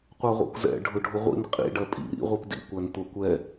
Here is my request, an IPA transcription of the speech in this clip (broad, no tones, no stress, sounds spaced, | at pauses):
qʷ ɑ ʁʷ ɛ̰ kʷ z ɛ̰ ɖʱ ʊ ɖʱ ʊ ʁʷ ḭ n qʼ ḭ ɖ ɜ pʼ ḭ ɾ ḭ ʁʷ i p d ḭ kʷ æ n tʷ ɑ kʷ ɛ